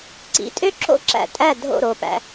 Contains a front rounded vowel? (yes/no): yes